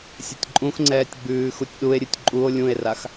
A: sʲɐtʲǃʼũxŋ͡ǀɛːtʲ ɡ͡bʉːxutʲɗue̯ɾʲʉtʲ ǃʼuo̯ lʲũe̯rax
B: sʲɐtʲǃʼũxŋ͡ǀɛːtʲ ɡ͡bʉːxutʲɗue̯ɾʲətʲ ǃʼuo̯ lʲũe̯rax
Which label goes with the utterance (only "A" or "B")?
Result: A